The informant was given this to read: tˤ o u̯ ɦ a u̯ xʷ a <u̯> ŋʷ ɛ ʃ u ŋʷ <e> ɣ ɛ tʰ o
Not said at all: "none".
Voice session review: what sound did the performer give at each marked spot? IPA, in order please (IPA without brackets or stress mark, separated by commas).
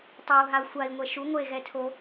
i̯, e